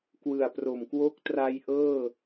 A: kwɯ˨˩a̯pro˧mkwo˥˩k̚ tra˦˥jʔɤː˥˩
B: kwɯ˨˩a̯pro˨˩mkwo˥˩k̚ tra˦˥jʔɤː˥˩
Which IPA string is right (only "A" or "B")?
B